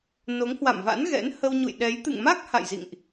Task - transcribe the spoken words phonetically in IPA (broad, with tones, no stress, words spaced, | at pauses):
no˨˦ŋhwa̰˧˨mva̰˧˥nɣɛ̰˧˥n hə˧wɲṵ˧˨jɗɛ˨˦j t̪ɨ̰˧˨ŋma˦˥k̚ ha̰˧˨jzḭ˧˨ŋʔ